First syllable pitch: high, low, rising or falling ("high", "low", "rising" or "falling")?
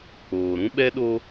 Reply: low